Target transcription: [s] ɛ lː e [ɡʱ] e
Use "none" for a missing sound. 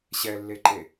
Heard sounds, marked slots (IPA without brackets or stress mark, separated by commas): ɕ, ǃ